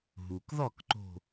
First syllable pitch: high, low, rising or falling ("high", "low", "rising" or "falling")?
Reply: low